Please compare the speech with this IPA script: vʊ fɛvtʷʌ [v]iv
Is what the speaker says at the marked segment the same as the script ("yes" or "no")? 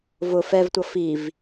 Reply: no